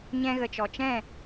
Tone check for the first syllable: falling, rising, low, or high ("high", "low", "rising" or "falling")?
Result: high